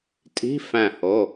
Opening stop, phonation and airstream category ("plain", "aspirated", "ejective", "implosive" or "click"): ejective